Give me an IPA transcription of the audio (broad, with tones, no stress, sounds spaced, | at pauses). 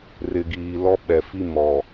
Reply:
r ɪ˨ ɡ iː˨ l ɔ˦ ɓ ɛ˨ f i˦ m ɔ˨